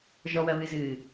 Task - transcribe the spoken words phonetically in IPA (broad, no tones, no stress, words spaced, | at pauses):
ʒɔwɐβɨzɨː